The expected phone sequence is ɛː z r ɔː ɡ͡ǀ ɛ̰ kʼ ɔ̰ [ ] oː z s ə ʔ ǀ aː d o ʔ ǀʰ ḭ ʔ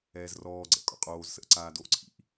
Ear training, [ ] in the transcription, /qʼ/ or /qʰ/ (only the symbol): qʼ